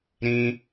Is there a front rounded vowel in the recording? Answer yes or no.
no